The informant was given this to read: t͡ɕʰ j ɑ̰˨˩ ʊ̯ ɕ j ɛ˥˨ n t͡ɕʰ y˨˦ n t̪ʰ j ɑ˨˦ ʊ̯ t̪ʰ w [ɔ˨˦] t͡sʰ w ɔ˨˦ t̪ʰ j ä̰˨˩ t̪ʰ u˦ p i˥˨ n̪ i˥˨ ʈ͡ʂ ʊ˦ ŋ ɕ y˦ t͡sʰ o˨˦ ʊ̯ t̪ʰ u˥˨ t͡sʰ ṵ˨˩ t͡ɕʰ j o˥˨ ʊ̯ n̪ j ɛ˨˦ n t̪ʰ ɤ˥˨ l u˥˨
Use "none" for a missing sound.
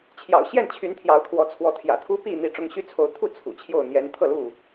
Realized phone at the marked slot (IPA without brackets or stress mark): ɔ˨˦